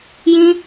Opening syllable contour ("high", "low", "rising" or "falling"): high